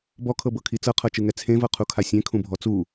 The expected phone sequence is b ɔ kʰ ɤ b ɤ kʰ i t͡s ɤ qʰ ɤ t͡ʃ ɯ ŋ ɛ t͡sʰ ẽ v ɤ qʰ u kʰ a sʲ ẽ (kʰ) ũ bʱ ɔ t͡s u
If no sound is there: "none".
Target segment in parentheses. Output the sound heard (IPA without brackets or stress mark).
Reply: kʰ